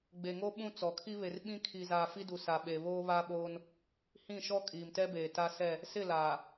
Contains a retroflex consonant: no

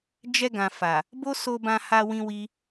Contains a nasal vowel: yes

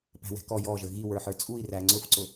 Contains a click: yes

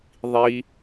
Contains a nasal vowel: no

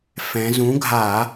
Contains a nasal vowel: yes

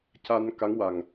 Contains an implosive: no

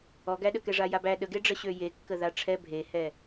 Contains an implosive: yes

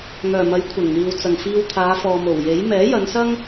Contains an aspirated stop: yes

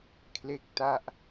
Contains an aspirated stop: yes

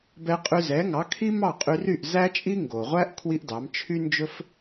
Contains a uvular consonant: yes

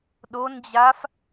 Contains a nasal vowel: no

